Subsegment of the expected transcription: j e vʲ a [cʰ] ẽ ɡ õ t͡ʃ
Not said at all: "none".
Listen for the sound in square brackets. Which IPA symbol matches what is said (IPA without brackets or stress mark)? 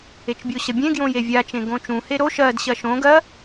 t͡ʃ